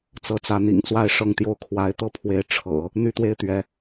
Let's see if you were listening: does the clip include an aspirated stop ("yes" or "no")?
yes